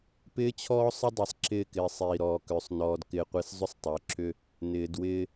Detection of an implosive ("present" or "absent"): absent